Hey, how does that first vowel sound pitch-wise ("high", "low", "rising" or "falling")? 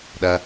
low